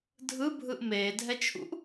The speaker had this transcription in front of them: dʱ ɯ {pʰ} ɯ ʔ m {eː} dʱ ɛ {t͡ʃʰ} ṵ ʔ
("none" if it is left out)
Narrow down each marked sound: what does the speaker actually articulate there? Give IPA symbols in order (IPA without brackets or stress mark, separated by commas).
bʱ, eː, t͡ʃʰ